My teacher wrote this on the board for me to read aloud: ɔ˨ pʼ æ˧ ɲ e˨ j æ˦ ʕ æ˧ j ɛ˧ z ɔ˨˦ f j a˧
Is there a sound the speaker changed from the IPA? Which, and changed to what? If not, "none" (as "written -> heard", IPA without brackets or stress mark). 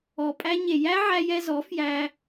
a˧ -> æ˧